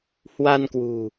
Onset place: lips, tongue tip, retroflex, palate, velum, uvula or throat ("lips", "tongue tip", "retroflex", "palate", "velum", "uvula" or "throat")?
throat